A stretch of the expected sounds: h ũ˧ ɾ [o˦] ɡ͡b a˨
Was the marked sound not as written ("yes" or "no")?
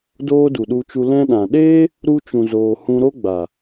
no